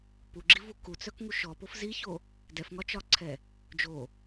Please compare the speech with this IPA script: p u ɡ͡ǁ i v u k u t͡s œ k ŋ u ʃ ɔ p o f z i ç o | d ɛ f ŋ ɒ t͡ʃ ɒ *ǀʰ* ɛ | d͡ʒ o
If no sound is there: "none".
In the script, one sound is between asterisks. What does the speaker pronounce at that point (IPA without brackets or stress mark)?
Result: ǀʰ